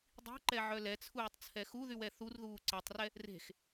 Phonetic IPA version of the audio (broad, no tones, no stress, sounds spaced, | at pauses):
dˤ i̤ ǃ ɛ ʕ œ l ɛ t͡sʰ uː tˤ t͡sʰ ɛ x u ð y w ɛ θ u r ð uː ǀ ɛ tˤ r ɛ | r e̤ x